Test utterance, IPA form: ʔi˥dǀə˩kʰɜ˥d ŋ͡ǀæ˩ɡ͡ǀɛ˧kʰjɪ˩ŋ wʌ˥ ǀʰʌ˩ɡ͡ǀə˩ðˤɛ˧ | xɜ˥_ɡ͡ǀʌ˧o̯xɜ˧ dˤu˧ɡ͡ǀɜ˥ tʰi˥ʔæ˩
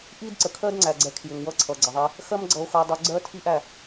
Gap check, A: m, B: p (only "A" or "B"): A